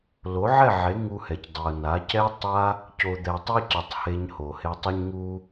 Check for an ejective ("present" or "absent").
absent